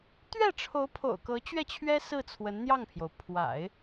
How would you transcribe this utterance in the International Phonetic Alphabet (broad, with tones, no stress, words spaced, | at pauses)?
t̪ɥɛ˥˩ʈ͡ʂʰo˧˥ʊ̯pʰo̰˨˩ʊ̯kɤ˧˥ t͡ɕɥɛ˥˩t͡ɕʰɥɛ˥ sɹ̩˥˩t͡sʰwə˧˥nn̪jɑ˥˩ŋpʰjo˩ʊ̯ pʰwa̰˨˩˦ɪ̯